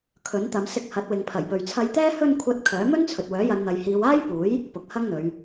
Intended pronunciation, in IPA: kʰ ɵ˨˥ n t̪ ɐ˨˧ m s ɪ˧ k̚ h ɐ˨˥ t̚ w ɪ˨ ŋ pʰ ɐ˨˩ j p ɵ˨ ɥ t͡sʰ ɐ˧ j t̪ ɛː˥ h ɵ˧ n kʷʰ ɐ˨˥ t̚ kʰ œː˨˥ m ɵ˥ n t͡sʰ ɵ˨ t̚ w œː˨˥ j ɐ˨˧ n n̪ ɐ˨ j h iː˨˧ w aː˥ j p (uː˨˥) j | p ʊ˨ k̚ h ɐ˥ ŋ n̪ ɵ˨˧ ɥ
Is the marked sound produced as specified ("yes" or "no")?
yes